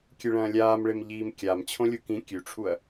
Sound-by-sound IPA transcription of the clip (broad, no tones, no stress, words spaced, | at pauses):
kʲɨɭɐ̃ːlʲaːmɭem ʎiːmkʲam t͡ɕʰõlʲukĩ kʲʉʈ͡ʂʰuɐ̯